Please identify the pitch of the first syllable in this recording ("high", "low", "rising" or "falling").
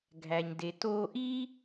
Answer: low